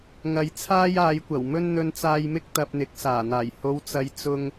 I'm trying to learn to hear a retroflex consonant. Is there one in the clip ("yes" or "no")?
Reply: no